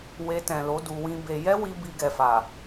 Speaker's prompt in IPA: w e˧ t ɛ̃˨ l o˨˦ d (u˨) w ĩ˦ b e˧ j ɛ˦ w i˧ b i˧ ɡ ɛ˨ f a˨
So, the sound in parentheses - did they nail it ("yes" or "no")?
no